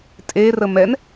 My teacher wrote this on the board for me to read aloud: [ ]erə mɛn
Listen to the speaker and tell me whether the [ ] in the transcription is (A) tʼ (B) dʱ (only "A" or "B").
A